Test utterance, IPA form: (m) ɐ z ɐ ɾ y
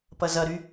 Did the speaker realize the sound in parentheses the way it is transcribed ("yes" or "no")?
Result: no